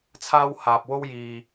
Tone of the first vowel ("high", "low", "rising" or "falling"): high